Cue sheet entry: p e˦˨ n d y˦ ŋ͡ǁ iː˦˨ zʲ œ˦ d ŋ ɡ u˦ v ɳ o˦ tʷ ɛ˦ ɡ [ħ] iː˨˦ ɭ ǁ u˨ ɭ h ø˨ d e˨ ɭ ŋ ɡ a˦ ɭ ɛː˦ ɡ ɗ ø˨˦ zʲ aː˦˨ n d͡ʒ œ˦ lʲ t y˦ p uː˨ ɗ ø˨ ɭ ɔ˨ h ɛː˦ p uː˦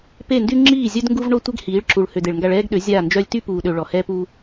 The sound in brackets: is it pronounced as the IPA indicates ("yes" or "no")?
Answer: no